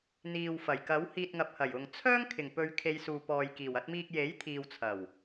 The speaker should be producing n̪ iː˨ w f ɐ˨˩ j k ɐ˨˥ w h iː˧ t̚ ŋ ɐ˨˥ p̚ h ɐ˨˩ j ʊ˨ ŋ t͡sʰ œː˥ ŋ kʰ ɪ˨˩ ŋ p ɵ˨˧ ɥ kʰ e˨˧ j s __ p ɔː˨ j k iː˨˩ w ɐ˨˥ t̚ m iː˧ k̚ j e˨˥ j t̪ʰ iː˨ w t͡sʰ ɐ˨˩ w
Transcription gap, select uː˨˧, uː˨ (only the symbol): uː˨